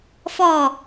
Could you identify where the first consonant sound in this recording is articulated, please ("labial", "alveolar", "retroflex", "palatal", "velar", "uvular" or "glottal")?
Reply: labial